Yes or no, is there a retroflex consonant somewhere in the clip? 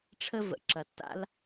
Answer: yes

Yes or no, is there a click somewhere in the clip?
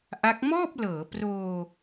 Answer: no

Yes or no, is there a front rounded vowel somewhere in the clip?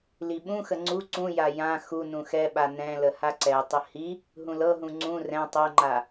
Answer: no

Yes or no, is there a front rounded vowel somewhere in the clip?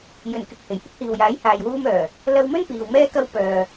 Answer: yes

